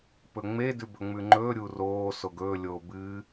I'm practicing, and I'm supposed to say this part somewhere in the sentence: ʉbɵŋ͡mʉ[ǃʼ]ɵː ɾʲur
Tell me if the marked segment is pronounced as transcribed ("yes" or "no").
no